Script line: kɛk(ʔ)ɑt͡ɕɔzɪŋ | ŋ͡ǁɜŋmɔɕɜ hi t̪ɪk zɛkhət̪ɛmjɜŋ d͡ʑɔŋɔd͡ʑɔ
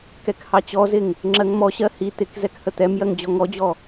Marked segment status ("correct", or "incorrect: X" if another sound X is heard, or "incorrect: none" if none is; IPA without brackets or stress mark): incorrect: h